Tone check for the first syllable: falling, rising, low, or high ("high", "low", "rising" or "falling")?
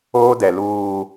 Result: high